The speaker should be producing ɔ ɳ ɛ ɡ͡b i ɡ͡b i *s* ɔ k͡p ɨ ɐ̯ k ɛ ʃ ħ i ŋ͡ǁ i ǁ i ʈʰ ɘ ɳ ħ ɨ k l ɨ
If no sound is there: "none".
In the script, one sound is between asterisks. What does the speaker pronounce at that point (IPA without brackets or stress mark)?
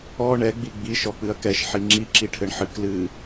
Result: ʃ